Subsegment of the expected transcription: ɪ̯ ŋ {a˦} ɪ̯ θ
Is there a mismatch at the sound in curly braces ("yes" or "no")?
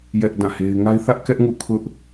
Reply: no